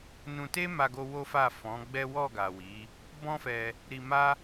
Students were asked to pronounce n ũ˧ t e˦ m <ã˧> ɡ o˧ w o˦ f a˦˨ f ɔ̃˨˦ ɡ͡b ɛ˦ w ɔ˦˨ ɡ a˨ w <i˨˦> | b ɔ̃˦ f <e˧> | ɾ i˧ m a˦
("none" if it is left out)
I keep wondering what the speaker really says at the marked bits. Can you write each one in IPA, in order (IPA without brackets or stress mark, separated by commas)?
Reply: a˧, i˨˦, ɛ˧